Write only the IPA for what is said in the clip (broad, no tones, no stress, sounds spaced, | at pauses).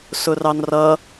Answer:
s ʊ r ɑ n r ʌ